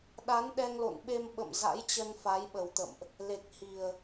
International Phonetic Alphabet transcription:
ɗ a˨˦ n ɗ ɛ˧ ŋ l o̰˧˨ n ɓ e˧ m ɓ ə̰˧˨ m z a̰˧˥ j t͡ɕ ə˧ n f a˨˦ j ɓ ə˨˩ w t̪ ə̰˧˨ m ʔ | l e˨˩ k̚ h i˨˩ ə̯

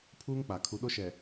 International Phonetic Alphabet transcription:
pʰ uː˦ ŋ k͡p a˨ kʰ u˨ ɗ o˦ ʃ ɛ˨

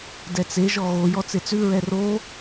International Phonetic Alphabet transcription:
d ɛ t͡s e ʒ ɔ ɣ o j ɔ t͡s e t͡s ʉ ɹ ɛ r o

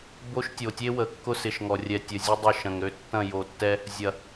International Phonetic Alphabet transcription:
b o˦ ʃ tʲ o˨ tʲ e˦ w ə˨ kː ʊ˦ s ɪ˨ ʃ ŋ ɔ˨ rʲ ɛ˨ tʲ ə˨ zʲ ʊ˦ dˤ ʊ˦˨ ʃ ɐ̃˨ ŋ ɾ ø˦ tː ɐ̃˦˨ j o˨ tː ɛ˦ | zʲ ɐ˨

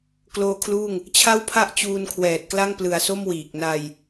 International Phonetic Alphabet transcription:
k l oː˦˥ kʰ l uː˥˩ ŋ | t͡ɕʰ a˥˩ w pʰ a˥˩ ʔ t͡ɕ uː˧ n kʰ w ɛː˨˩ t̚ k l a˥˩ ŋ p l ɯ˨˩ a̯ s o˥˩ m w iː˨˩ k̚ n a˧ j

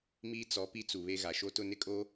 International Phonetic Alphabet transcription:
m iː˦ t͡s ɔ˨˦ p i˦ t͡s u˨ β e˦ ɣ a˨ ʃ o˦ t ʊ˦ n ɪ˦ kʼ o˦

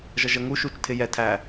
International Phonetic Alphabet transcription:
ʒ ʌ ʒ ə ŋ u ʃ u t͡ʃ tʰ ɪ j ɛ tʰ æ

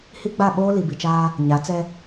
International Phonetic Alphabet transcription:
h i˦ ɡ͡b a˦˨ ɓ oː˦ l i˨ b i˨ t͡ʃ aː˦ | ɲ a˨˦ t͡s ɛ˦

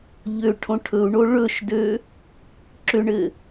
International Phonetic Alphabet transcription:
ʎ ø ʈʰ õ ʈʰ ɵ u̯ ɳ o ɭ ɵ ʃ d ø | ǁ ʏ ɳ ɘ

